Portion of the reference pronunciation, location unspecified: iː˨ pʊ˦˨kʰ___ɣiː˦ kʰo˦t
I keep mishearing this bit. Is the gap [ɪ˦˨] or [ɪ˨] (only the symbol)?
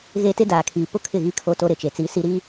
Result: ɪ˦˨